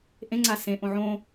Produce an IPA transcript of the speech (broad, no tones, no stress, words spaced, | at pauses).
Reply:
ʔẽŋ͡ǀa sẽʔõ ʕõ